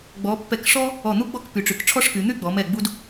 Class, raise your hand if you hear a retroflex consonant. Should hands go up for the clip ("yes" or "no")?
yes